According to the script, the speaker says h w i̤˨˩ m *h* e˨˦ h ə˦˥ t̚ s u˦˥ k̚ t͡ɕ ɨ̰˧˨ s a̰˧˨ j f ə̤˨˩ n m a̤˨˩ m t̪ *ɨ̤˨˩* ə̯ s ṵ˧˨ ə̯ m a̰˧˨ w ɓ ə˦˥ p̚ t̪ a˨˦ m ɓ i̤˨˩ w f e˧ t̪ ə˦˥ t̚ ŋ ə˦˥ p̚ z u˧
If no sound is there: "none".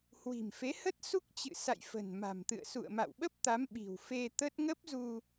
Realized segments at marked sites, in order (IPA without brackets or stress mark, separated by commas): f, ɨ̰˧˨